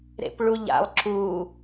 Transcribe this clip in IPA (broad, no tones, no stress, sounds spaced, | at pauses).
ɾ ḛ p ɭ u ʎ a̰ lˠ ǁ u